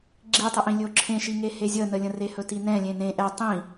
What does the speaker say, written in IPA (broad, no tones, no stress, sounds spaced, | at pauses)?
ɡ͡ǁ i tˤ ɛ ʔ ĩ lʲ ɵ o̯ ǁʰ ẽ ʃ i ŋ e h e zʲ ə n ə lʲ ə̃ r e h ɵ t i n ɛ̃ lʲ ẽ n ẽ ʔ ɛ tˤ ĩ